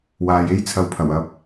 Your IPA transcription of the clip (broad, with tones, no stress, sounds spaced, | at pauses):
w aː˨ j e˥ j t͡sʰ ɐ˧ w pʰ ɐ˨˩ w ɐ˨˥ p̚